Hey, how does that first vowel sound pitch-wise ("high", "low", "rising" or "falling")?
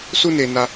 high